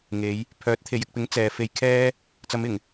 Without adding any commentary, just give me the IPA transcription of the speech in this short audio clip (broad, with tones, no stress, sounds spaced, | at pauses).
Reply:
ŋ e˨˧ j | pʰ œː˨˥ t̚ t̪ʰ e˨ j ɪ˧ k̚ p ɪ˨˥ ŋ t͡s ɛː˨ f e˧ j kʰ ɛː˥ | t͡s ɐ˨˧ m ɪ˨˩ ŋ